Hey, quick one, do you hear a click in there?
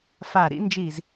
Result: no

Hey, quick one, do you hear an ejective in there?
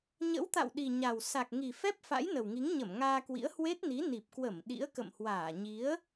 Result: no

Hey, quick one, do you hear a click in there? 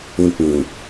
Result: no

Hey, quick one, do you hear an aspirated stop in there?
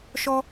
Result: no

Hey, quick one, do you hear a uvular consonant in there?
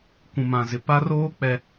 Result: no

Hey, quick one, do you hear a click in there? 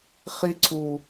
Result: yes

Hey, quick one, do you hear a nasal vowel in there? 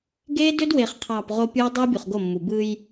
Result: no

